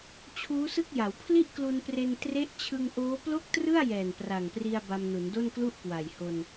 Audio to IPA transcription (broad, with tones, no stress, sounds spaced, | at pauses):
t͡ɕʰ uː˦˥ s ɯ˥˩ k̚ j a˩˦ w pʰ l i˥˩ ʔ k l u˧ n p r e˧ n t r e˦˥ ʔ t͡ɕʰ ɯ˧ ŋ ʔ oː˦˥ p l o˥˩ k̚ t r ɯ˥˩ a̯ j ɛː˨˩ n p r a˨˩ ŋ p r i˧ a̯ b a˧ m n u˩˦ n d o˥˩ n k l u˥˩ ʔ k w a˨˩ j h o˧ n